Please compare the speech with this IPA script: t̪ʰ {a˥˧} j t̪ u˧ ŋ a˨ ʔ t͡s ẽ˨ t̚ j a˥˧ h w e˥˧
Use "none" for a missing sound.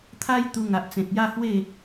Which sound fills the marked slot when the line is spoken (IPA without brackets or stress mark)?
a˦